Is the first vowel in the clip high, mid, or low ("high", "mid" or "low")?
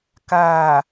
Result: low